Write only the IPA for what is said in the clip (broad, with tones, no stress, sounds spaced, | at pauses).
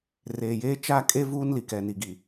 r eː˨ j eː˦ t͡ʃ a˦˨ kʼ e˦ v uː˦ n l i˨ k ɛ˨ n i˨ ɡ i˨